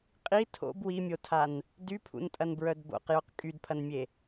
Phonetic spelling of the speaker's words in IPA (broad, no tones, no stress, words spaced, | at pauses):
qʼi tʰo̰b wimʲotʰan | dypʰṵntʼɐnbɹœd bo̰qjoq kʼydpʰɐnmʲe